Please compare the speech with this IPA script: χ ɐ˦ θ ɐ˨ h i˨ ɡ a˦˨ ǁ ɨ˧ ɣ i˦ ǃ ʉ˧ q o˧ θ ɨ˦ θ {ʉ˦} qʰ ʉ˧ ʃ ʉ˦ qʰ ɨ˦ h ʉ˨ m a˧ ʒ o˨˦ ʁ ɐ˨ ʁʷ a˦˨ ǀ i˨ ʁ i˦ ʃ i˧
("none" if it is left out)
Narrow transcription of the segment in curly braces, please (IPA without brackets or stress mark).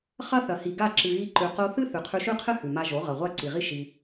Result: ʉ˨